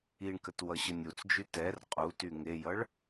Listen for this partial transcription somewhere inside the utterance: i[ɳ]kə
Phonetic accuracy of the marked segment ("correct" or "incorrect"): correct